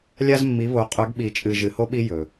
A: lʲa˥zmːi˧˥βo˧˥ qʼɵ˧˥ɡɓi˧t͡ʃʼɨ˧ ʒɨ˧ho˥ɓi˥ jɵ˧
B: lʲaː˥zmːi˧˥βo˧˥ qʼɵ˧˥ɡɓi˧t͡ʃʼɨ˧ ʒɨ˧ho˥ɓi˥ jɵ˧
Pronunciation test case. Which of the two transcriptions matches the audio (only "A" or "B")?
A